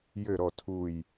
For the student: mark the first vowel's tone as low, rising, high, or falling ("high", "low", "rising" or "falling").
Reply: low